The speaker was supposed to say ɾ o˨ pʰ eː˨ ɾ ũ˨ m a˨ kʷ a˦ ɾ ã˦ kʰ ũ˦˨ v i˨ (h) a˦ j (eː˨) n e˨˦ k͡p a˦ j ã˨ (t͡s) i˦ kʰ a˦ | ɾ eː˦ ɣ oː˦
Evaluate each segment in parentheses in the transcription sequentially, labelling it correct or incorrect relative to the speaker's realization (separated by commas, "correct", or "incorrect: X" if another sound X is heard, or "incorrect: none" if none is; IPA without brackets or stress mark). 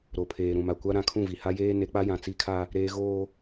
correct, incorrect: eː˦, correct